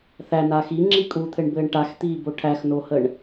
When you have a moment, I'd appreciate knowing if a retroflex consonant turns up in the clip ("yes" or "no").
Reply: yes